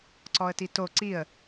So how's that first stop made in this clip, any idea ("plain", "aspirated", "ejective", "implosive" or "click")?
click